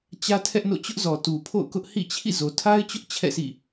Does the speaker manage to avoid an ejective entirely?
yes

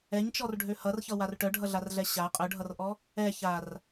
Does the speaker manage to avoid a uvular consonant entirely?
no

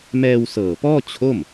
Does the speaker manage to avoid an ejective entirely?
yes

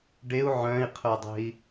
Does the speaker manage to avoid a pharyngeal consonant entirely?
no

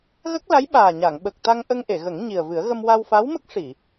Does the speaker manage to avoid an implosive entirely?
no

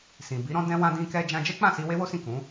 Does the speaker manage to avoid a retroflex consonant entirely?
yes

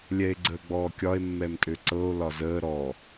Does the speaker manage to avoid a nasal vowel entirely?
yes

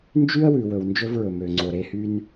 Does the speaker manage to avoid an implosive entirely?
yes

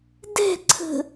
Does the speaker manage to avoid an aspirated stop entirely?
no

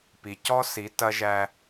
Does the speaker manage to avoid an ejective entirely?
yes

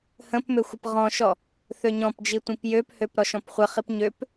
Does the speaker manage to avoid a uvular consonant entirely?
no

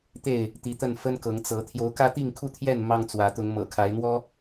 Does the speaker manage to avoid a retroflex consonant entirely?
yes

